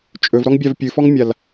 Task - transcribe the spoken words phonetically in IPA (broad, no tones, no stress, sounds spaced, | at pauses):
t͡ʃʼ ɵ v ɾ ɔ ŋ bʲ a v pʲ ɨ f ɔ ŋ mʲ a l